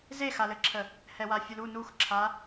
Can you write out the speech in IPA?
z e x a l ɘ ǁʰ ə | h ɛ w a fʲ u l u n u x ǁʰ a

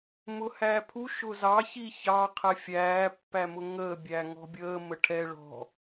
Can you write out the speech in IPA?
m ʊ h æː pʰ u ʃ ʊ z ɑ ç i ç ɑ qʰ ɛ fʲ æː pː æ m ʊ ŋ əː bʲ æː ŋ ɔ̤ bʲ əː m ə ʈʰ ɛ ɭ ɔ̤

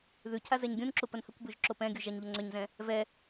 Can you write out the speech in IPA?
ð ʉ cʰ a z ɛ ɲ ɡʲ ũ n ǁ u p ə n h ə kʷ b ʉ ʒ ǁ o p ɛ̃ ɡʲ u ʒ a ɲ ʎ ə ŋ͡ǀ ʏ ɲ z ɛ̃ | v ɛ

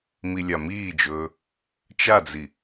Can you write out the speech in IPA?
m i lʲ a m iː d͡ʒ ɵː | t͡ʃ a d͡z i

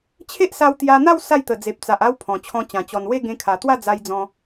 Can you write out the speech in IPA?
t͡ɕʰ e˦ ʔ s a˧ w t̪ j a˧ n̪ a˥˧ w s a˥˧ j t̪ ə˨˩ d͡z e˨ p̚ t͡s a˨ ʔ a˦ w pʰ ɔ̃˨˩ t͡ɕʰ ɔ̃˧ t͡ɕ ã˨˩ t͡ɕ ɔ˨˩ n w e˥˧ ɡ ẽ˧ kʰ a˨˩ t̪ w a˥˧ d͡z a˧ j d͡z ɔ̃˧

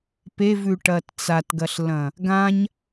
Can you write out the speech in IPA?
p e v ʉ ʈ ɐː t t͡s a t ɡ ɐ ɬ l ɐ̃ | ɡ ã ɲ

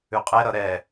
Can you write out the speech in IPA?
ʉ qʼ ɛ ɾ ʌ ɾ ɛ

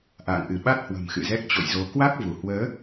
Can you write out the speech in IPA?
ʔ a̰ː˧˨ ŋ ʔ ɨ˧˩ ɓ a˦˥ t̚ h w ə̤˨˩ m x ɨ̰˧˨ z ɛ˦˥ k̚ t͡ɕ o̰˧˨ j z o˨˦ k w a˦˥ k̚ v u˧˩ h w əː˨˦

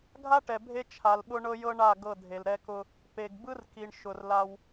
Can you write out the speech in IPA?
ɡʱ a˦ ʈ ɛ˨ bʱ e˦ t͡ʃʰ a˨ l ɓ ʊ˦ ɳ ɤ˦ j ɤ˦ ɳ a˦˨ ɡ ɤ˦˨ dʱ e˨ l ɾ ɛ˦ k ʊ˦ | p e˨ ɡ b ɯ˦ r k i˨ ɳ ʃ ʊ˨ r l a˦ w

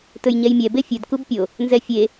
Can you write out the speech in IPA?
t ɵ j ɲ ɛ j mʲ ɛ b e fʲ ɵ d k u b pʲ o | n z ɛ fʲ e

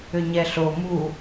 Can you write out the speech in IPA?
ʏ ɲ ɛ ɬ o m u

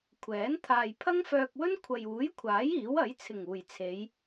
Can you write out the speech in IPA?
kʷʰ ɛː˨˥ n t̪ʰ aː˨ j pʰ ɐ˥ ŋ f œː˧ k̚ w ɵ˥ n kʷʰ ɐ˨ j uː˨˥ j kʷʰ aː˨˥ j iː˨˥ w ɐ˨˥ j t͡sʰ ɪ˨˩ ŋ uː˨˩ j t͡sʰ e˨˧ j

